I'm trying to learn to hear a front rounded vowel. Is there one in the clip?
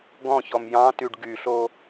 yes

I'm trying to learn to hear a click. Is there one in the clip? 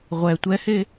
no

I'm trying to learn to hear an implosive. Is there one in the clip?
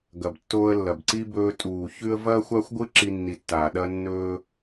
yes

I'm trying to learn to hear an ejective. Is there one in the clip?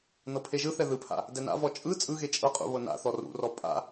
yes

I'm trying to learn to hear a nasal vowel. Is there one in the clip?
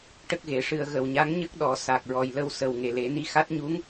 no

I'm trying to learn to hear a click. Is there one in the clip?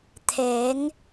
no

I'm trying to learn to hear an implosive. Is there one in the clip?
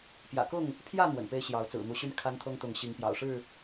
no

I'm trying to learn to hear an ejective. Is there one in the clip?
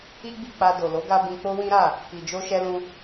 no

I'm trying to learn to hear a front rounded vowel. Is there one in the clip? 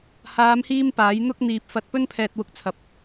no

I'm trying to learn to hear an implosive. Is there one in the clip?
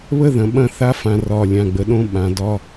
yes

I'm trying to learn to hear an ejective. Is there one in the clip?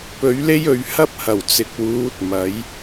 no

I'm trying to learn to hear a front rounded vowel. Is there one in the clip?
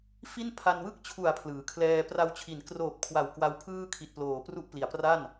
no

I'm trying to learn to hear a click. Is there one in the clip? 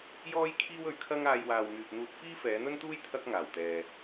no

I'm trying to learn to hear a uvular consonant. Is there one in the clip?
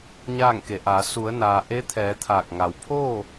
no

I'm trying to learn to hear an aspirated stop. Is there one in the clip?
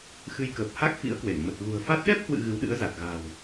no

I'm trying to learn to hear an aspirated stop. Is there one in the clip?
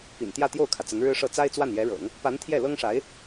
yes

